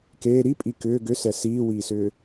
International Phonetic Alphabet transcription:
k eː ɾ i pʼ i k ʏː ɡ ʏ s ɛ s iː w iː s ʏː

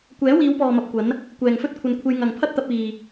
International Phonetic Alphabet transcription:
kʷ ɛː˨˥ w iː˨˧ w p ɔː˨ m ɐ˧ p̚ kʷ ɐ˨˥ n | kʷ ɛː˨ ŋ f ɵ˥ t̚ kʷʰ ɐ˧ n kʷʰ e˧ j ŋ ɐ˨ ŋ pʰ ɐ˥ t̚ t̪ ɐ˧ p̚ iː˨

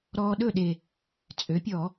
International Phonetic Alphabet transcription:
ɾ ɔː˧ ɗ ɵ˥˩ ɗ e˨˩ | t͡sʼ ø˩˥ pʲ ɔ˧˩˧

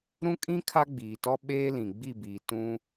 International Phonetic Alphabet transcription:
ɾ ũ˦ kʼ ĩ˦ kʰ a˦ ɡ͡b iː˨ t ɔ˦ ɓ eː˦ l ĩ˨ ɡ͡b i˦˨ b iː˨ t ũ˦

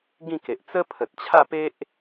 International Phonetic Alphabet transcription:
ɡ ĩ˥˧ k e˨ ʔ t͡s ə˦ pʰ ə˨ t̚ t͡ɕʰ a˥˧ p e˦ ʔ

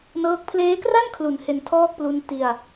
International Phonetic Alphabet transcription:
n ɤː˥˩ k̚ pʰ l eː˦˥ k r a˥˩ n kʰ l u˩˦ n h e˧ n tʰ ɔː˥˩ k̚ p l u˦˥ n t i˧ a̯

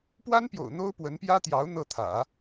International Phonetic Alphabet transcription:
p w a˥ n p j o̰˨˩ ʊ̯ n̪ o˥ ʊ̯ p w ə˧˥ n p j ä˥ t̪ j ɑ˧˥ ʊ̯ n̪ ɤ˥˩ t̪ʰ ä̰˨˩˦

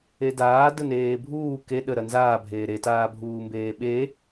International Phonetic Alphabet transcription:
e d aː d ə n eː bʱ uː k e ɗ ə ɾ ɐ n z aː bʱ eː ɾ e t aː bʱ uː m b eː ɓ e

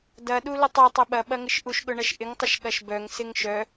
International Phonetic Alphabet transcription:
d ɐ ɗ u l ə tˤ œ tˤ œ ɓ ɐ ɓ ɐ ŋ ɪ ʃ ʔ u ʃ ɠ ʊ ɳ ɐ ʃ ʔ ɪ ŋ tˤ ɪ ʃ ɠ ɐ ʃ b œ ŋ s ɪ ŋ ʃ œ

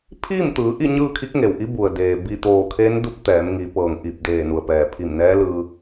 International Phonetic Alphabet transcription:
pʰ iː˥˨ m t̪ ɯː˩˧ ʔ i˥˨ ɲ ɯː˥˨ kʰ i˧˥ k̚ ŋ e˩ w ʔ i˧˥ b u˩ ə̯ d eː˩ b i˧˩ t̪ oː˧˩ kʰ eː˧˥ n d u˧˥ p̚ t̪ ɛː˩˧ m ŋ i˩˧ p ɤː˩ ŋ ʔ i˧˩ p̚ d eː˧˩ n u˩ ə̯ p ɛː˩ pʰ i˧˩ m n ɛː˧˥ l ɯː˧

